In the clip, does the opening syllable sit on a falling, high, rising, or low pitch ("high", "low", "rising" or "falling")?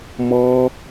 high